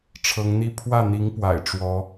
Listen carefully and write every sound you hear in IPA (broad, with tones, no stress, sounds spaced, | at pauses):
ʈ͡ʂʰ ɤ˧˥ ŋ n̪ i˥˧ pʰ w ä˥˩ n̪ i˧˥ ŋ p w a̰˨˩ ɪ̯ ʈ͡ʂ w ɔ˧˥